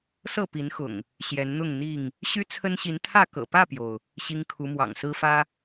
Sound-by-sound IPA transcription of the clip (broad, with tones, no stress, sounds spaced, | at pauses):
s ɤ˥˨ p i˨˦ n x ʊ̰˨˩ ŋ | ɕ j ɛ˨˦ n n̪ ʊ˥˨ ŋ n̪ i˥˨ ŋ | ɕ y˦ t͡sʰ ə˦ n ɕ i˨˦ n t̪ʰ ä˥˨ k ɤ̰˨˩ p ä˥˨ p j o˩ ʊ̯ | ɕ i˦ ŋ kʰ u˨˦ m w ɑ̰˨˩ ŋ s ɹ̩˦ f ä˦